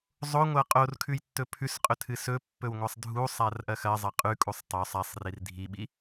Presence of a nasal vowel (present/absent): absent